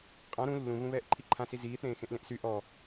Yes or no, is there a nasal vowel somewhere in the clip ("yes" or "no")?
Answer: yes